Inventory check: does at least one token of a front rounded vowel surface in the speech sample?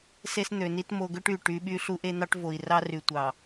yes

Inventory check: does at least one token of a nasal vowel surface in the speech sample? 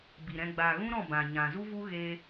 yes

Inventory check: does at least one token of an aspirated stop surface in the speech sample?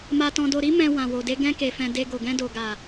no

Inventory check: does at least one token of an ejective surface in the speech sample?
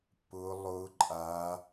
yes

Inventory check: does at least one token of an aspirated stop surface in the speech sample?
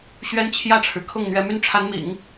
yes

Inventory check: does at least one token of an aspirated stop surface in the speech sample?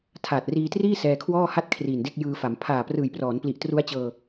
yes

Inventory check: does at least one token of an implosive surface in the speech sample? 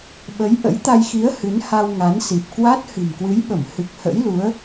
yes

